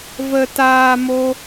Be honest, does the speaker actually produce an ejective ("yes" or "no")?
no